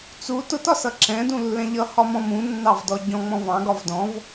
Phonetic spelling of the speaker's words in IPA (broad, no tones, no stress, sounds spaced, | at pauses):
t͡s u t ʊ t ɒ s ʌ ǁ ɛ̃ d ũ lː ɛ̃ ʎ ʌ h ɒ m ɔ̃ m ũ nː ɑ v d ɔ ɟ ɔ̃ ŋ͡m ɔ̃ v ɑ̃ ɡ ɒ v d ɔ̃ v